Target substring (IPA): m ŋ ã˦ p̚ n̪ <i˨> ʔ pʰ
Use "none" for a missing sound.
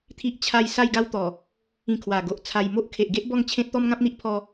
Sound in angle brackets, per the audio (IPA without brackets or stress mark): i˦